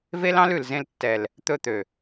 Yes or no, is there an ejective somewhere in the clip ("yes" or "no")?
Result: no